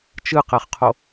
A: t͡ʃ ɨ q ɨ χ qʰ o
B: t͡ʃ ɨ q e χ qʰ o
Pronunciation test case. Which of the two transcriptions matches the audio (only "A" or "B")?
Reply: B